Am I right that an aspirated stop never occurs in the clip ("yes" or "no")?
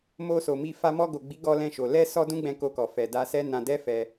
yes